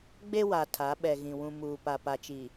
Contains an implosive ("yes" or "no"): yes